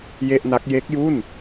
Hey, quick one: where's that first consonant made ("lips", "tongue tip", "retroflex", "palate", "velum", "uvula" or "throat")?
palate